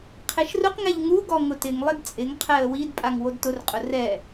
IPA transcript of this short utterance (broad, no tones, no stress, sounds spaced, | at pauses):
qʰ e ʃ r ʊ q ŋ ɛ ʎ ŋ u ɡ ɔ ŋ ʊ t ɪ ŋ lˠ ɪ d t͡sʼ ɪ ŋ qʰ ɛ ə̯ w i d pʼ a ŋ w o d t ʊ r qʼ ʊ r ɛ